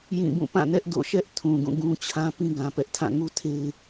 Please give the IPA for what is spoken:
j ĩ˦˨ b ũ˦˨ p ã˦˨ n ɛ˦ ʔ d o̰˦˨ ʃ ɛ˦ ʔ tʰ ũ˨ ɡ ũ˦˨ ɡ ũ˦ t͡ɕʰ ã˦ p ĩ˦ ɡ ã˦ p ɛ˦ ʔ tʰ ã˦˨ ŋ u˦ tʰ e˦ ɪ̯

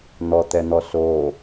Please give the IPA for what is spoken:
n̪ ɔ t̪ ɛ n̪ ɔ s o

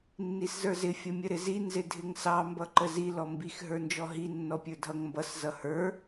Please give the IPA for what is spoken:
nː i s z ə˞ z ɪ fʲ ʌ mʲ ə ɾ ɪ z i n z ɪ dʱ ɪ ŋ s ɑ m b ʌ ǃ ə z i l ɔ m b i x ɦ ə˞ n d͡ʒ ɔ ɦ i nː ɔ pʲ ə˞ dʱ ʌ ŋ m b ʌ s z ʌ h ə˞

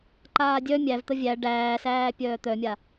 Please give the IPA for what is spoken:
ǃ aː dʲ œ mʲ æ v t̪ ə vʲ æ ɖ æː s æː pʲ œː t̪ œ mʲ a

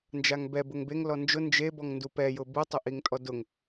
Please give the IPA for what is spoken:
n d͡ʒ a ŋ b ɛ b ʊ ŋ b e ŋ l ɔ n d͡ʒ ʊ n d͡ʒ e b ɔ ŋ n d u p ɛ j ʊ b u tˤ ʊ ʔ i ŋ tʼ ɔ d ʊ ŋ

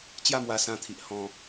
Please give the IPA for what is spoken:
t͡ɕ j a˥˧ m w a˧ s ã˧ t̪ʰ i˨ ʔ h ɔ̃˧

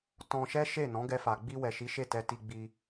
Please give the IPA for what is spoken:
t ɔ̃˧ ʃ ɛ˦ ʃ e˦˨ n ɔ̃˨˦ ɡ ɛ˧ f a˨ ɡ͡b i˧ w ɛ˨ ʃ i˨˦ ʃ e˦˨ t ɛ˧ t i˧ ɡ͡b i˧

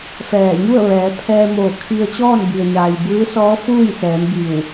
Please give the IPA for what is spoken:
f ɛː˧˩ ɲ u˥˨ ə̯ ʋ ɛː˩˧ pʰ ɛː˧ m oː˧˩ kʰ i˧ ə̯ t͡ɕ ɔː˥˨ n b i˩ ə̯ ɲ aː˩ j b ɯː˧˥ s ɔː˧˥ f uː˥˨ j s ɛː˩˧ m b i˧˩ w

